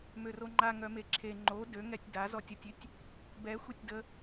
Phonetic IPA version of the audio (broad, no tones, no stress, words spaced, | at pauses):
møroŋ͡ǃa ŋœmeǁʰe ŋ͡ǃo døŋɛtʲ da zɔtʲətʲytʲ | bɛ xʷitʲdə